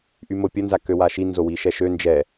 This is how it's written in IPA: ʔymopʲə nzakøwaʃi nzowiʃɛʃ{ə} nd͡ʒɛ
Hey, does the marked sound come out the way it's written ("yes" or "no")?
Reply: no